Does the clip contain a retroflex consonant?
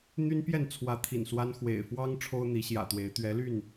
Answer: yes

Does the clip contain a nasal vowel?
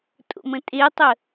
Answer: yes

